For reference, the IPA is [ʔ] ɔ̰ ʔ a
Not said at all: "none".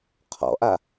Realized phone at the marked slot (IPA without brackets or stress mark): qʰ